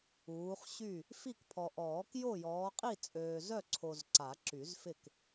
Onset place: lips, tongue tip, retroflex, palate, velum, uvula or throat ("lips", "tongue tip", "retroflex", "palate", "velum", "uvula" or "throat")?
uvula